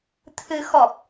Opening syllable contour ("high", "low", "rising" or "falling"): rising